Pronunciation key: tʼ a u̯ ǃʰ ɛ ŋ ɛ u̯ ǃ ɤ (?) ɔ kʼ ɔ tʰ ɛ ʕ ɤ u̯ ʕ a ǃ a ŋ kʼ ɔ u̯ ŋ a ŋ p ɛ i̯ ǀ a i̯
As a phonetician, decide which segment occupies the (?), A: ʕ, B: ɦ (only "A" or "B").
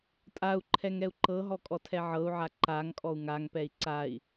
B